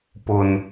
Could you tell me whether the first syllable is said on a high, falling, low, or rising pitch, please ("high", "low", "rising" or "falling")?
low